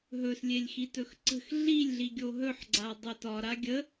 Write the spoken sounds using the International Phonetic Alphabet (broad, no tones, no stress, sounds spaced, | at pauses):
ɦ ɵ s lʲ e lʲ x i t ɵ x ǀ ə̤ x ɮ i lʲ ɮ i ɡʲ o ɦ ɵ ħ ɡ͡ǀ a dˤ ɵ t ɒ ɾ a ɡʲ ə